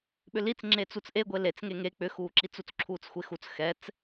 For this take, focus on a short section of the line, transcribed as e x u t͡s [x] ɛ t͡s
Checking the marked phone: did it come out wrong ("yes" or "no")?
no